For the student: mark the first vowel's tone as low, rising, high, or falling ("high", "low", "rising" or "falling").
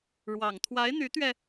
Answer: low